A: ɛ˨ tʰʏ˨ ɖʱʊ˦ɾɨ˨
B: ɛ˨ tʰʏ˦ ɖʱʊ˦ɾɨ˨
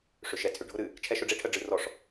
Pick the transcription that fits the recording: A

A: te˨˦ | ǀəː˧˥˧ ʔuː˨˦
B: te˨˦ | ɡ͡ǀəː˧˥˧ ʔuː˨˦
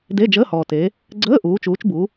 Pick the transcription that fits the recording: B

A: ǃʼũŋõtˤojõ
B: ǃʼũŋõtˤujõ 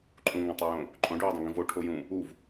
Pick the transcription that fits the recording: A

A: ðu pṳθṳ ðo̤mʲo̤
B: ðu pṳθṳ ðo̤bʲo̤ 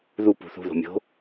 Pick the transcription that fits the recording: A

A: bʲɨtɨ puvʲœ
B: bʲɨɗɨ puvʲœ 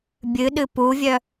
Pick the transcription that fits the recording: B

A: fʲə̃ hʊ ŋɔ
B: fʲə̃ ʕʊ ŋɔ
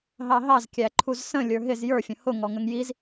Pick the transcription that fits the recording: A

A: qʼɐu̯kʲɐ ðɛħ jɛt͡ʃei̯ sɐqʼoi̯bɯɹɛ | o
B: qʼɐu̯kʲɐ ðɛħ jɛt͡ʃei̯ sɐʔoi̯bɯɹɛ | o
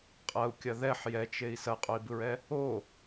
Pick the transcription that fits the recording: A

